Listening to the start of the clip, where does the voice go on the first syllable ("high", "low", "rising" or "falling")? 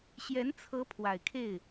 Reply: rising